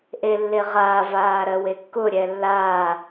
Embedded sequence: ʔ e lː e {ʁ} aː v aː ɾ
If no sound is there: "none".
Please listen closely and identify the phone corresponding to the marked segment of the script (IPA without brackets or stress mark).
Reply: ʁ